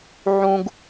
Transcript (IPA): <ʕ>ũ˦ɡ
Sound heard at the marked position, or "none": ʕ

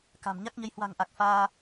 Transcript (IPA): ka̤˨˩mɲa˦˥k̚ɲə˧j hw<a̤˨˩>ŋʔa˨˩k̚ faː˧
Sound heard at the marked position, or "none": a̤˨˩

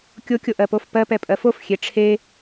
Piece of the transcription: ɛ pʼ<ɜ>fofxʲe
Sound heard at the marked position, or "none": ɜ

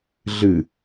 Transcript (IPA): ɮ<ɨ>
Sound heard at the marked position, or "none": ɨ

